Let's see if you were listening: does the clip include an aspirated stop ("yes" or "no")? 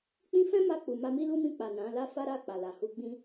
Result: no